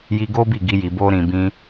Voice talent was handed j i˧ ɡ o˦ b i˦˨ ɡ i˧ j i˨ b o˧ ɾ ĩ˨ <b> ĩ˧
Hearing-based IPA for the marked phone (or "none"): b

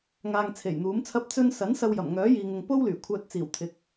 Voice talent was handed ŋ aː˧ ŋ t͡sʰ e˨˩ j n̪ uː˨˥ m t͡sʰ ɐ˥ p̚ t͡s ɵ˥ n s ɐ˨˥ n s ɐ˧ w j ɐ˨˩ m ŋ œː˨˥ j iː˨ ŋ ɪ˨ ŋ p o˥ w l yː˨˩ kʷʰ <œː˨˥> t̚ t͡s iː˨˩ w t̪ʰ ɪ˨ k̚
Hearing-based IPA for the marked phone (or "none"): œː˧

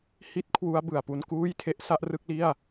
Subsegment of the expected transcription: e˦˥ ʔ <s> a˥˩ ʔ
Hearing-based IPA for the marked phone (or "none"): s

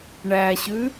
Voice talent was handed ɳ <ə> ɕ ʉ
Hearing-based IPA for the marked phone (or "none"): æ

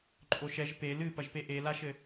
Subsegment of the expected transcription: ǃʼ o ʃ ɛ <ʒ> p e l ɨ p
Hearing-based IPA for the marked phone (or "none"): ʒ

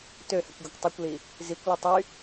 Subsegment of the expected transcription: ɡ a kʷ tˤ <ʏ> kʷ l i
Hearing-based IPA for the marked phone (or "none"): y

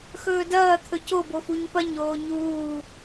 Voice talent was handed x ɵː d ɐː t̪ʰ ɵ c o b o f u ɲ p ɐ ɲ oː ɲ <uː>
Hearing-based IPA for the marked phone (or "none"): uː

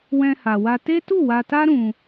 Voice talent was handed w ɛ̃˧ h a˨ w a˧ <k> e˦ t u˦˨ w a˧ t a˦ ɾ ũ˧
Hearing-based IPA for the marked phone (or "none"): t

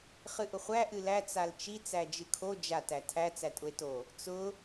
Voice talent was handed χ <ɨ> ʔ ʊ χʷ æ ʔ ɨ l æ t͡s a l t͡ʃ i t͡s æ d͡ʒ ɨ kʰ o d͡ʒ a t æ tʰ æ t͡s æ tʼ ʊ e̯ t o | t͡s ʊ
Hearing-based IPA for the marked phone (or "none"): ɨ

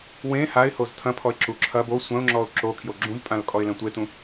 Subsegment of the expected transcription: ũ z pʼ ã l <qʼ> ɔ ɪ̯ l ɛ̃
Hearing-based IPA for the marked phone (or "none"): kʼ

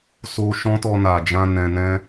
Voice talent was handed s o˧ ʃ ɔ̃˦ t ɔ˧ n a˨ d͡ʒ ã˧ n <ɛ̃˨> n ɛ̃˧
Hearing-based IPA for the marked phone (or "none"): ɛ̃˨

